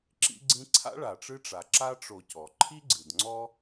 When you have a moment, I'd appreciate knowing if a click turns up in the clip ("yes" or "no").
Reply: yes